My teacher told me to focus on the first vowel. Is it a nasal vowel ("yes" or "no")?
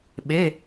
no